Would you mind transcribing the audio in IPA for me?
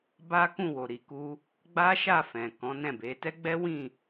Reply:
b a˦ k ũ˦˨ w o˨ ɾ i˨ k u˧ | ɡ͡b a˦ ʃ a˦˨ f ɛ̃˨ k ɔ̃˨˦ n ɛ̃˦˨ b e˨˦ t ɛ˦ ɡ͡b ɛ˦ w ĩ˦˨

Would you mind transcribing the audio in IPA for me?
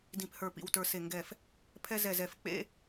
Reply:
d ĩ˧˩ p h ə˞˧˩ p ḭ˧˩ w t ə˞˧˩ s e˧˩ ŋ ɡ ɛ˧˩ f | pʰ ɛ˦ z ɛ˧˩ z ɛ˧˩ f k͡p ḛ˦

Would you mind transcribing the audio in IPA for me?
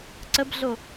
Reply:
ǀ ə b ɮ o

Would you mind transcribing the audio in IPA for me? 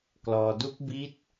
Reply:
k l ɔː˧ d u˦˥ k̚ b i˦˥ t̚

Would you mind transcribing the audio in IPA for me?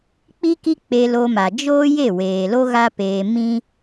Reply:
k͡p i˦ k i˦ k͡p e˧ l o˧ m a˨ d͡ʒ oː˦ j e˦˨ w eː˨ l o˦ ɣ a˦ p eː˧ m ĩ˦

